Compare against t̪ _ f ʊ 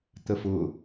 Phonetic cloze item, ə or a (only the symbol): ə